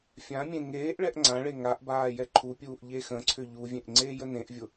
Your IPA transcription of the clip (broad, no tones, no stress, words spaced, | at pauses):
fʲãmʲẽ ŋeːʔ ɭɛʔŋ͡ǀãɭe ŋaʔ baːjɛǃʰupʲuːʔ ʎexə̃ǀʰʏ ʎuvʲẽʔ ŋ͡ǀeːjənẽʔvʲʊ